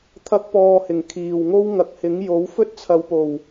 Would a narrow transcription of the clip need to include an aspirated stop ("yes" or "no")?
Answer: yes